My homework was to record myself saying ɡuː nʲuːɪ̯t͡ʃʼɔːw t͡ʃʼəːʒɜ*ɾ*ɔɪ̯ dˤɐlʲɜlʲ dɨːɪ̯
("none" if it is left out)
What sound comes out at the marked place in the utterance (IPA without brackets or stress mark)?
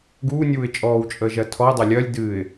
tʰ